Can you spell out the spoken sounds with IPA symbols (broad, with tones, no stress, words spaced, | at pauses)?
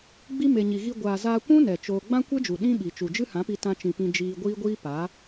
ɡ͡bi˦ me˨ɲi˨ɣi˧ ɡʷaː˨zaː˧kʷũ˦ nɛ˨ t͡ʃoː˧ ɡ͡bã˦kʷe˦d͡ʒu˨ ɗĩ˦ɓi˨ t͡ʃu˨d͡ʒɨ˦hã˨˦pi˧ tã˧t͡ʃĩ˨ pĩ˧ d͡ʒiː˧ɡʷiː˦ɡʷiː˦pa˨˦